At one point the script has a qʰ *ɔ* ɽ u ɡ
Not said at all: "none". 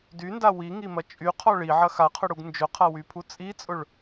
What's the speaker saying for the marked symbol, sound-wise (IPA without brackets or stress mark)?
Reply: ʊ